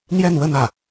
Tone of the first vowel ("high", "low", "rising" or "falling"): falling